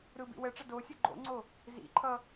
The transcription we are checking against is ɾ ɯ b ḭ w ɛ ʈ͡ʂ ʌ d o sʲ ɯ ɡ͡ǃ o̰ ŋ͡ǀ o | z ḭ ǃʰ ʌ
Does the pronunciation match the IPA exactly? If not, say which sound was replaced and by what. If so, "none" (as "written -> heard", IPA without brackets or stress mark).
none